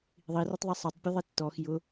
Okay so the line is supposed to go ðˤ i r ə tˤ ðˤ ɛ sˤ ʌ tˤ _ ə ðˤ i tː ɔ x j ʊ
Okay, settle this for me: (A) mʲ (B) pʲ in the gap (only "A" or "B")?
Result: B